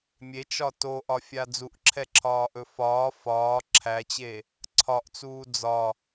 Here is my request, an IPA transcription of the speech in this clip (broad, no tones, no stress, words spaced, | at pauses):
mʲet͡ʃɒ toʔɒfʲa d͡zuʔǁʰɛǁʰɒːʔɵ fɒː fɒː ǁʰæt͡ɕe | ǀʰɒʔt͡suː d͡zɒ